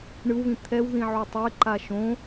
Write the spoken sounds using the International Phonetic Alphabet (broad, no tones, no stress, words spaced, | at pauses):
ɳɯwβĩ t̪ʰɛwðĩ ʕutˤeǃa ʃõ